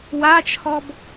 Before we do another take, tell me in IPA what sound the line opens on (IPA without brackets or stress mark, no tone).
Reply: w